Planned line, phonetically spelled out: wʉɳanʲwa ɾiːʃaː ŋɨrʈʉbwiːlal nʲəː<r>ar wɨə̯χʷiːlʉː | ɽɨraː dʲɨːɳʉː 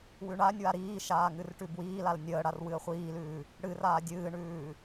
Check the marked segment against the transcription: incorrect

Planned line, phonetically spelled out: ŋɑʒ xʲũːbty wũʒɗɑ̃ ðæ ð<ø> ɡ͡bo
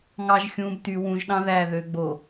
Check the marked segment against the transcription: correct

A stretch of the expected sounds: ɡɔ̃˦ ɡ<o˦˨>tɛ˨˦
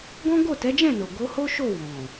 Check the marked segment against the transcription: correct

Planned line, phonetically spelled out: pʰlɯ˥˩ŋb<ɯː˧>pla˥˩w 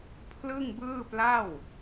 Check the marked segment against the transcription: incorrect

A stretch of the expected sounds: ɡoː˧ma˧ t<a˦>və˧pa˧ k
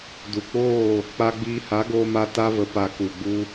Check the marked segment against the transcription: correct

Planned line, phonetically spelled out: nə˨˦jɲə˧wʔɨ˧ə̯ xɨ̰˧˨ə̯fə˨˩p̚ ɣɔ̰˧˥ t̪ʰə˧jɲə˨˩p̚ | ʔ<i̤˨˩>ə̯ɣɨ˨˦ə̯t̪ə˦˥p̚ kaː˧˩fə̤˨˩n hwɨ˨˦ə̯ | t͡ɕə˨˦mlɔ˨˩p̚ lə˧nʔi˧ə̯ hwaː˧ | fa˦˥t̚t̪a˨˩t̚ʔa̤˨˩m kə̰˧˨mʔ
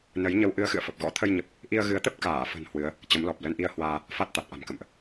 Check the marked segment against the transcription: incorrect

